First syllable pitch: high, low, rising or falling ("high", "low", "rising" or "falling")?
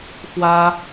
high